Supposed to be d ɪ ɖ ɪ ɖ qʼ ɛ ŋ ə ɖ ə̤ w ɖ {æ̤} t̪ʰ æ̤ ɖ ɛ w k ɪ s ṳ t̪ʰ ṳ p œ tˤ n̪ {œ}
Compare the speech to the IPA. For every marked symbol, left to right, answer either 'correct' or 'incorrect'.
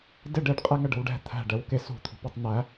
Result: incorrect, incorrect

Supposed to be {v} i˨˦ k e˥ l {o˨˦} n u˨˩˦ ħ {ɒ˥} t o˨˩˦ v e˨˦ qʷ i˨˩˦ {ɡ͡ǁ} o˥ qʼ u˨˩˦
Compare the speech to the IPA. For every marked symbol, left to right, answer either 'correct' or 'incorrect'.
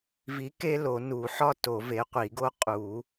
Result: correct, incorrect, correct, incorrect

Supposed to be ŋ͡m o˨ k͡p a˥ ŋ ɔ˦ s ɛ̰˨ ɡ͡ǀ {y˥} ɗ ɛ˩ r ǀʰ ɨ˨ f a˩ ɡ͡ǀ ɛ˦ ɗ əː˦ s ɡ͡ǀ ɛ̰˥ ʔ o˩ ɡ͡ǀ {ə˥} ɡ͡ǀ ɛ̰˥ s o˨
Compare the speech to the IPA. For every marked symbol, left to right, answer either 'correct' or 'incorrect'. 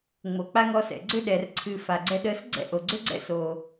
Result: incorrect, incorrect

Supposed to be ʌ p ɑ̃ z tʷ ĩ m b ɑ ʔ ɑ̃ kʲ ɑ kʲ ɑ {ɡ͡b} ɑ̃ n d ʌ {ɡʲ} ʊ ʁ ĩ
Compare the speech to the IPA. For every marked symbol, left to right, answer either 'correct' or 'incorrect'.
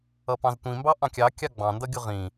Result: correct, correct

